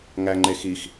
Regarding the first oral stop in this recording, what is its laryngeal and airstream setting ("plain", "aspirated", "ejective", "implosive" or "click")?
click